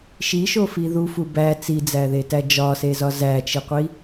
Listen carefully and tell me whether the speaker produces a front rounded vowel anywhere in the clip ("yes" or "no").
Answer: no